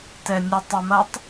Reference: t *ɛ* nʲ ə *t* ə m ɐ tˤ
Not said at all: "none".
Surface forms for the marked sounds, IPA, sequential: ɛ, tˤ

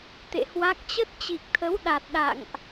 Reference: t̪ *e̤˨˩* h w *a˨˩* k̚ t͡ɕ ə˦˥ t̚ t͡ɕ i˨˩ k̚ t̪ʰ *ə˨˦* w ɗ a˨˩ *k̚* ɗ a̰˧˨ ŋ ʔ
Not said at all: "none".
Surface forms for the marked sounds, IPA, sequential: ḛ˧˨, a˦˥, ə˨˦, t̚

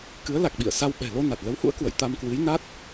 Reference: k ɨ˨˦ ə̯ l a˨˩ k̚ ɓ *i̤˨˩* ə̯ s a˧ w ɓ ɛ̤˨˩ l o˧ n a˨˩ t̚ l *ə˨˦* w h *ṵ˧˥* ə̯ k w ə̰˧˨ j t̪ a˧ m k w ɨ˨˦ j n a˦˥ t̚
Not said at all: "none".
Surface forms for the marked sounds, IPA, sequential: ḭ˧˨, ə˨˦, ṵ˧˥

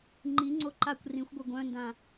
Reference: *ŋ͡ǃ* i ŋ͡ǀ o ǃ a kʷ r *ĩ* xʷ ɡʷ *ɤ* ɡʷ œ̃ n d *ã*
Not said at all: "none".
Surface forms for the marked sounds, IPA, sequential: ŋ͡ǃ, ĩ, ɤ, ã

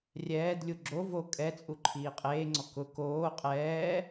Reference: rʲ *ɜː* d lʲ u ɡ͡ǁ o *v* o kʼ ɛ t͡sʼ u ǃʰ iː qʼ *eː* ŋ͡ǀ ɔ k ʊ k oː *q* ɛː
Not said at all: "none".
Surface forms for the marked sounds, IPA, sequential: ɛː, v, eː, qʼ

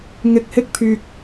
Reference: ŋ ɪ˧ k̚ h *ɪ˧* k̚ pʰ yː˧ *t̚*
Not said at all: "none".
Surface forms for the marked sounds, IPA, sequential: ɪ˥, k̚

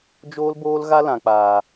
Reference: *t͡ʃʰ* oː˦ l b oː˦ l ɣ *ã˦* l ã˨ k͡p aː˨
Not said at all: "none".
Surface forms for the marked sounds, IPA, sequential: d͡ʒ, a˦

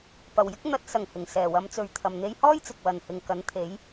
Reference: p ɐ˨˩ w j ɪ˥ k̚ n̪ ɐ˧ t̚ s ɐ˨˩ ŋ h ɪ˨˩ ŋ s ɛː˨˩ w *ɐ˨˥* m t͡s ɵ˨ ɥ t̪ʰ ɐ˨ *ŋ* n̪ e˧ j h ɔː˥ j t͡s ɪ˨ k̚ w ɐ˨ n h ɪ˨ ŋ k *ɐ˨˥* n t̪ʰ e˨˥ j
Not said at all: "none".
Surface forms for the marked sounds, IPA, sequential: ɐ˨˧, m, ɐ˨˥

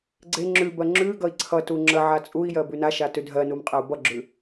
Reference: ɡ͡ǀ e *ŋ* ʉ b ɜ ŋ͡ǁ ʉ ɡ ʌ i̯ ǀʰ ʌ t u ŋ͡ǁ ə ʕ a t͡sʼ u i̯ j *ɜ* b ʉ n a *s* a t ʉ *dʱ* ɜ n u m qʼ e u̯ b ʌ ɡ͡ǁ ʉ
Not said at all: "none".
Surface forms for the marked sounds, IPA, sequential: ŋ͡ǁ, ɜ, ʃ, dʱ

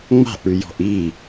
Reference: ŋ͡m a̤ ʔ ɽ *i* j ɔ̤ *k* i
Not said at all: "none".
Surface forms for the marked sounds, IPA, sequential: y, ʔ

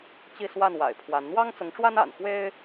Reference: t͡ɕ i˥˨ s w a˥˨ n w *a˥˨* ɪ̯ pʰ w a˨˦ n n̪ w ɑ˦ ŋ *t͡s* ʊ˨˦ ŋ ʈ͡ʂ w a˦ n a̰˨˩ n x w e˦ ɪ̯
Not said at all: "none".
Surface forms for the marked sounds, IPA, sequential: a̰˨˩, t͡s

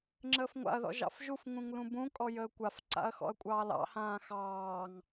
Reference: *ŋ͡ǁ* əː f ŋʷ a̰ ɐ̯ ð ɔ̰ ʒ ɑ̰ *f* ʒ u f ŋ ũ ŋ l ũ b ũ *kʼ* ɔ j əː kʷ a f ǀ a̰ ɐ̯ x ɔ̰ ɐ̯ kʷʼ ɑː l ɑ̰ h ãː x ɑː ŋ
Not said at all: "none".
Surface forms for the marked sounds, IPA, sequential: ŋ͡ǁ, f, kʼ

